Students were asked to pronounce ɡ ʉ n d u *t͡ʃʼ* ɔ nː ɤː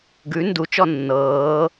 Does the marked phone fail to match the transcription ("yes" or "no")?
yes